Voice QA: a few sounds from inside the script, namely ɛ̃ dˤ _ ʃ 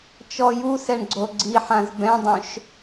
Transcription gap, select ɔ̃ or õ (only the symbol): õ